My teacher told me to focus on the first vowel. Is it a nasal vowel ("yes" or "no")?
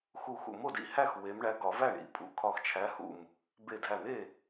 no